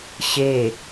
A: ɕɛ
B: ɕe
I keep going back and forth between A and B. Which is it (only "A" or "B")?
B